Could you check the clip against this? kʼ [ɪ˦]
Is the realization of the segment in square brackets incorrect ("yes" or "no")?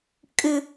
no